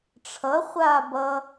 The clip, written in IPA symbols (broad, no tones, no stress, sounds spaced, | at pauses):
ʈ͡ʂʰ ʌ χʷ aː b ʌ